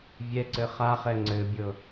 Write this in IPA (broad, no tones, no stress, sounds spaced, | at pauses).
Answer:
vʲ ɛ ǀ ɘ χ a χ ɛ ŋ͡ǀ ɘ bʲ ɤ